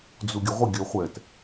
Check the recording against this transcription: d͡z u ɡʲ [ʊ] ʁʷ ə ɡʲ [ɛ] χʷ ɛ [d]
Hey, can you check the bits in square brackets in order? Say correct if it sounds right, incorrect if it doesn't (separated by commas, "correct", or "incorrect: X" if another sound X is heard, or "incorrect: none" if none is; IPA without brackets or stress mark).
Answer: correct, incorrect: œ, incorrect: t